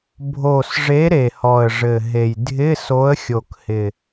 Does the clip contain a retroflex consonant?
yes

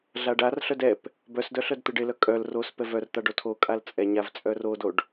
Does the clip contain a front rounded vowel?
yes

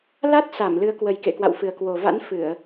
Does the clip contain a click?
no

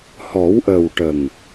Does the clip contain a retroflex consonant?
yes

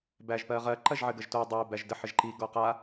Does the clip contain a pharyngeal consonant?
yes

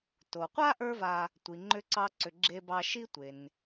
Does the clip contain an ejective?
no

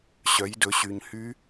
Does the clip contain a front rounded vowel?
yes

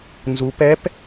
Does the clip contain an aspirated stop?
no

